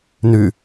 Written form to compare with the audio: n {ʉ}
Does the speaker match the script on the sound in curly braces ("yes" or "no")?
yes